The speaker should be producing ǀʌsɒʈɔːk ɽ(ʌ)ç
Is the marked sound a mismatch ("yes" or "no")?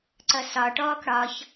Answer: yes